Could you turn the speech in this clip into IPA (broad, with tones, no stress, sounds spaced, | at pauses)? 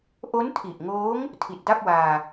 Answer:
ʔ o˦˥ n tʰ i˨˩ ʔ ŋ oː˦˥ ŋ | tʰ i˨˩ t̚ d a˥˩ p̚ w aː˧